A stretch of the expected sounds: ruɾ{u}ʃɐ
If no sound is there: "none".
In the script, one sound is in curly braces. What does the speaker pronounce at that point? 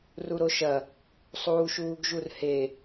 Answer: o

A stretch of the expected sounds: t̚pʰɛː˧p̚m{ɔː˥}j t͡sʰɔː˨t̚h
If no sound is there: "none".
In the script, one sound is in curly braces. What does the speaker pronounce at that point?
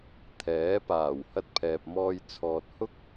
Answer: ɔː˥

